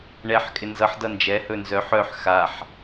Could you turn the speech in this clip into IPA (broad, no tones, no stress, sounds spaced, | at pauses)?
ɳ ɛ ħ kʼ ɪ n z ʌ ħ d ʌ n d͡ʒ ɛ h ɵ n z œ ħ œ ħ x a ħ